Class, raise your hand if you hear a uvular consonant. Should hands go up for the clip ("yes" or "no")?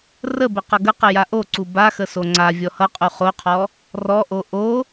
yes